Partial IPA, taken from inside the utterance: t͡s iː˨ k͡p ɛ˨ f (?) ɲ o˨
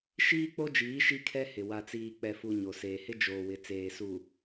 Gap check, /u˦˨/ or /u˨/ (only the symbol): u˨